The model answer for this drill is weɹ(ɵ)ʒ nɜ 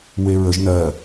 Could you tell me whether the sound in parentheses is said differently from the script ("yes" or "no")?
yes